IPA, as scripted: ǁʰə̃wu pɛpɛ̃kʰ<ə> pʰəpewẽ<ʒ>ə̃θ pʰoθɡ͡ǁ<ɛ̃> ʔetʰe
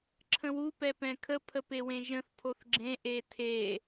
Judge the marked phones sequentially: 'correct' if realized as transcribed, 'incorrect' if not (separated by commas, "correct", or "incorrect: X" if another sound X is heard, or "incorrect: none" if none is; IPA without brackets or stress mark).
correct, correct, incorrect: ẽ